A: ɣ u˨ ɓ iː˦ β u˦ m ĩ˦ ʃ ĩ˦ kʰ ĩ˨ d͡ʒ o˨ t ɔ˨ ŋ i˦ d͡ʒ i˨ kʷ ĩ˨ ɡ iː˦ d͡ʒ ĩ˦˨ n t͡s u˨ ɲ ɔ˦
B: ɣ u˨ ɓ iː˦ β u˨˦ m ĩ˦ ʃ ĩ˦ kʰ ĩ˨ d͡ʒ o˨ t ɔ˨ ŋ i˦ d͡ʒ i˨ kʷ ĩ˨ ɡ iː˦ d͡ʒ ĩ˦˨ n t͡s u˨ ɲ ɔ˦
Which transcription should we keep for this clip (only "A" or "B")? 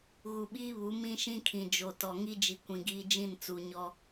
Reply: B